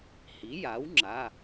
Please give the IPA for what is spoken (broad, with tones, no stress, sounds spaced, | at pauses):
h i˩˥ j a˩˥ w ŋ͡ǁ a˩˧˩